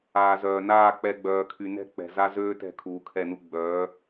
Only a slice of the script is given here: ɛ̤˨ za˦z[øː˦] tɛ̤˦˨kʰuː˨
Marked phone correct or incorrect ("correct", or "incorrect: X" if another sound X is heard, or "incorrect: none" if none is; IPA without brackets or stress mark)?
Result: correct